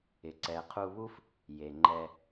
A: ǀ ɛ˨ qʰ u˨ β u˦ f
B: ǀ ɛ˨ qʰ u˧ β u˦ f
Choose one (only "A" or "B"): B